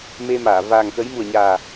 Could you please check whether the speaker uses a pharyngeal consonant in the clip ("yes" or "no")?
no